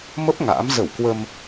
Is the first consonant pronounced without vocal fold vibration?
no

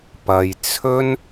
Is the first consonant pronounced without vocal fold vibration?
yes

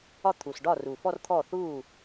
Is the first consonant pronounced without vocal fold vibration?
yes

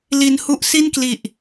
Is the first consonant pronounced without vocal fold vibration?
no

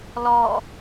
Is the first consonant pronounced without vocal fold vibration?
no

